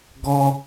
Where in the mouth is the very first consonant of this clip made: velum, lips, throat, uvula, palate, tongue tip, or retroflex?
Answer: velum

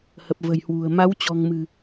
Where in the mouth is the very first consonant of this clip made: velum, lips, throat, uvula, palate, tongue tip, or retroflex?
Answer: throat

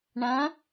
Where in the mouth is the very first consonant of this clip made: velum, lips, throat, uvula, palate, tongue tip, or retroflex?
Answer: retroflex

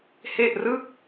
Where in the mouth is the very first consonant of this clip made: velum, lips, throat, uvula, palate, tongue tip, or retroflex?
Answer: throat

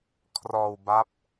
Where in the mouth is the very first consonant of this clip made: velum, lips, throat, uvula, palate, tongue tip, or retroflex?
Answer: velum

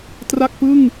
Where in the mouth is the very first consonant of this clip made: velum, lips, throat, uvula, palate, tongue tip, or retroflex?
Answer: tongue tip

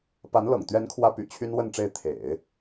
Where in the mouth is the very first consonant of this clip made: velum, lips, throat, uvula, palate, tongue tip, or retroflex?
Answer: lips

